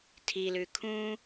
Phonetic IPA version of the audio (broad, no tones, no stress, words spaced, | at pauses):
tʰilʉ kʰũ